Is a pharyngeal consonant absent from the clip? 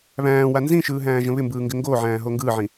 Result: no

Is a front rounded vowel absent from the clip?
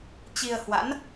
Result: yes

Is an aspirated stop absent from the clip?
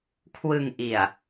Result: no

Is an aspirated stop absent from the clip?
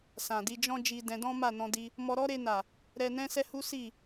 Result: yes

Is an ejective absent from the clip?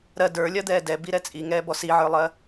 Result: no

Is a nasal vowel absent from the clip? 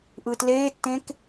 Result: no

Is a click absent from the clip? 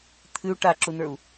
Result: no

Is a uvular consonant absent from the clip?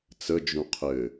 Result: no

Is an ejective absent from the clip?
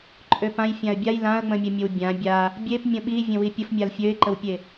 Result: no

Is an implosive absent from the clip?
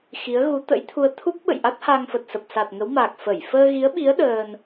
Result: no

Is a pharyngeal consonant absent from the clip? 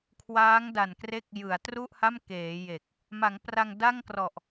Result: yes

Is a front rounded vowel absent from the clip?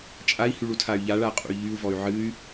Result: no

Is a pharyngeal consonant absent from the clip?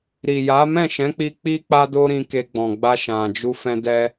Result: yes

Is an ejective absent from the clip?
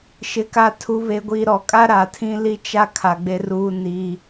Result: no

